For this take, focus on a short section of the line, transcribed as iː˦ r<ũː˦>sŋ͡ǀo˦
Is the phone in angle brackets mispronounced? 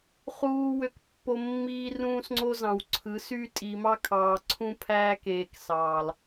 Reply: no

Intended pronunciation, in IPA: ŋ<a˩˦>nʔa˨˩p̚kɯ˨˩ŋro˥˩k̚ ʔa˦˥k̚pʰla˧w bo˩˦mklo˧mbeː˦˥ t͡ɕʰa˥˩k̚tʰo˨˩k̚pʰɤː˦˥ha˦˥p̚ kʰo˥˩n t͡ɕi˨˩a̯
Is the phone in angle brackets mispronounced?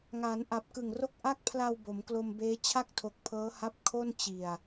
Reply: yes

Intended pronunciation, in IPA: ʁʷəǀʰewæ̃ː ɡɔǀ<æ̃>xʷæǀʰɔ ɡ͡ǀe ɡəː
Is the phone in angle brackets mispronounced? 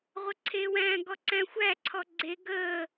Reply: no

